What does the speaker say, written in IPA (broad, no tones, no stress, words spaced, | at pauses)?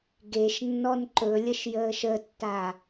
ɡeʃ nːɔnǃɵlʲəʃ jəːʃətːa